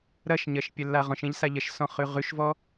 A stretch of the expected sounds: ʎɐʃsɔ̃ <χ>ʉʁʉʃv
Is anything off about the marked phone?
no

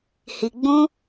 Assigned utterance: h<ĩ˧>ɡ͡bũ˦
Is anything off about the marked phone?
yes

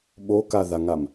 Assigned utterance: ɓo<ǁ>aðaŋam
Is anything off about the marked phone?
yes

